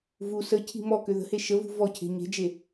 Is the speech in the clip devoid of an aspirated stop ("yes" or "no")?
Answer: no